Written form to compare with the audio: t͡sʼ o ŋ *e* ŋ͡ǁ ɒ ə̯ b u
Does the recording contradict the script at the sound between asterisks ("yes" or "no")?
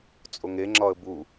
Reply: no